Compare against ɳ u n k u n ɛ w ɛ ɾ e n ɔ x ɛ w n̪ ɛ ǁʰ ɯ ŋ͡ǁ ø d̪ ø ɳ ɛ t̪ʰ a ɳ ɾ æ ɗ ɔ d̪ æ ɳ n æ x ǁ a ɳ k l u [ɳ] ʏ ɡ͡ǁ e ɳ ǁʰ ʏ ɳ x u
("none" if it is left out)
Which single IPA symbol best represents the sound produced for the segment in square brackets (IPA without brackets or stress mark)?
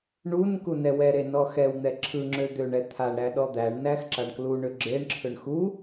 ɳ